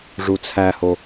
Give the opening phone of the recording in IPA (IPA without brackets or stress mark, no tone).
ʐ